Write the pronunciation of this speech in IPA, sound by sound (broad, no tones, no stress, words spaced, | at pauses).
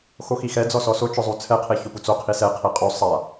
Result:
xoxixɛ d͡zɔsɔso t͡ʃʊzˤut͡sʰɛ qʰeçʊput͡so qʰisɛ qʰeqʼu sˤa